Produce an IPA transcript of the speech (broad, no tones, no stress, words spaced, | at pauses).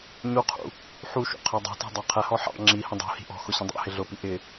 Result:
ɲuqʰṵ | ħuʃṵ qʰɛdˤṳtɛ̤ dˤɑqʰɛhɔ ħɑ̰ ŋ͡ǁihə̃ dˤṳ hi̤ʔɔ̤xʊ ɕə̃dˤɑ̰hɪ ɮʊpi ʔɪ